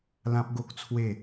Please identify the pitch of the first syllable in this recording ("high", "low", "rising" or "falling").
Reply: high